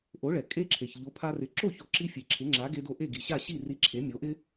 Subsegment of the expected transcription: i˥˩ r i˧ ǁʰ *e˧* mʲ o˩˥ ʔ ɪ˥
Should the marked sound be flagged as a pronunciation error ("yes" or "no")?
yes